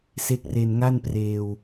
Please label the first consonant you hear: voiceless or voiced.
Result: voiceless